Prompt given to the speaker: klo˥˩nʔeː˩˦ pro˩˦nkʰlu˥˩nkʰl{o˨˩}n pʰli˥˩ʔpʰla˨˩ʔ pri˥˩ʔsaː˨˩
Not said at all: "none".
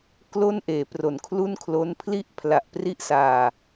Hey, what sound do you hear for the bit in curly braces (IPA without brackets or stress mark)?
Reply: o˦˥